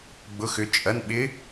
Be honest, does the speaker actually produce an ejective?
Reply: yes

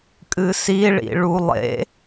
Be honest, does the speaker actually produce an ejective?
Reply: yes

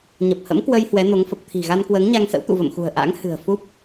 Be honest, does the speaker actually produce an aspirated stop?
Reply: yes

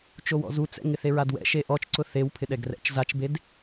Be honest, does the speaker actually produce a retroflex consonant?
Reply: no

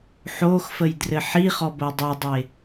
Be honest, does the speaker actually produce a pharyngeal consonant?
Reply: yes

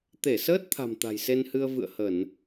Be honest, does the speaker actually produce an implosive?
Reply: no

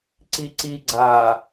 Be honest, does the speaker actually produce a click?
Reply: yes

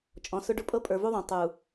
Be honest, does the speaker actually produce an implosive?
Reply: no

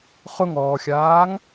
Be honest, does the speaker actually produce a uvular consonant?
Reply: yes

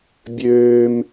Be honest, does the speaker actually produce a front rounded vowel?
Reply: yes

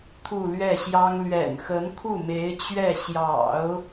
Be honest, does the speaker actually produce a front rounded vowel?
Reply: no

